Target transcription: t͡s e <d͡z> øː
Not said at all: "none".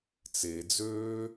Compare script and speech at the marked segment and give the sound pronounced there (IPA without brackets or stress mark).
d͡z